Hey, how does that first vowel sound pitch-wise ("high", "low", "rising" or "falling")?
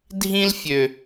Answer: high